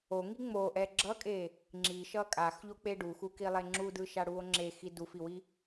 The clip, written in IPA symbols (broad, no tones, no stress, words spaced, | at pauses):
oŋi ŋ͡moʔɛ ɡ͡ǁʌkʼe | ŋ͡ǁiʃʌ kʼaxʎok͡pe ɖuxukilˠe ŋ͡ǁudɯʃaɽuo̯ ŋ͡ǁexi dufiwi